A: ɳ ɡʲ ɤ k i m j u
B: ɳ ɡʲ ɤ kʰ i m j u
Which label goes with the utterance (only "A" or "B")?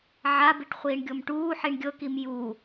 A